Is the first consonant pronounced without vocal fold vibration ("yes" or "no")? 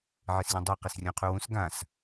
no